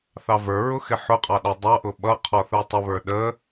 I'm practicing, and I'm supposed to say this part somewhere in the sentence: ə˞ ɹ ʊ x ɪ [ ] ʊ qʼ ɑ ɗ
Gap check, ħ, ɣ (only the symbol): ħ